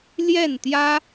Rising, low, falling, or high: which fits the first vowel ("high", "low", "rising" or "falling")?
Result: falling